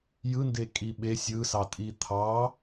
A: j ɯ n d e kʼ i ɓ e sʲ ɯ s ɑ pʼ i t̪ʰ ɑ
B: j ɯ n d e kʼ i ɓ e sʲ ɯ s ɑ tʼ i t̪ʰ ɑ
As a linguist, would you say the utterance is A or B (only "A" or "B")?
B